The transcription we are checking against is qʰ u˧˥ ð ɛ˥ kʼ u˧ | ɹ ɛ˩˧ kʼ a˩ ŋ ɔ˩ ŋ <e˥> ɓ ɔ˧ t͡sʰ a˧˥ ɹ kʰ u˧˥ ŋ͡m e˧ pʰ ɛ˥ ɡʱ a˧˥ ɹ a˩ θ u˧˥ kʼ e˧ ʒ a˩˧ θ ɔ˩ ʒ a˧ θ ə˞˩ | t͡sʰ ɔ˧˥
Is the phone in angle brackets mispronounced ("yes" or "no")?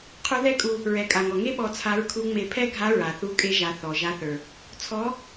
no